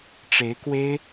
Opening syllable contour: rising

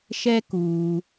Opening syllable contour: high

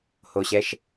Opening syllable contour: low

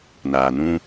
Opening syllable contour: low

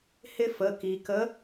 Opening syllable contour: high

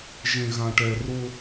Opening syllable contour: high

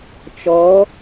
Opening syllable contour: rising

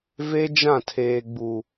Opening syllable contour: high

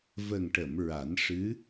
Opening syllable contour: low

